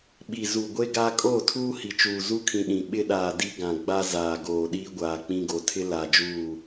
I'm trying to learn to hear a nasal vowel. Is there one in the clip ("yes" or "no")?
yes